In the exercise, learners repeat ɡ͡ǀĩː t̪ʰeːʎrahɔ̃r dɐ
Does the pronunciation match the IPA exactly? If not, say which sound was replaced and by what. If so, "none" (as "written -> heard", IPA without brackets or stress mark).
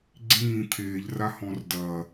none